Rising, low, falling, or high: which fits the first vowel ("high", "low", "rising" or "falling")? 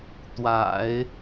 low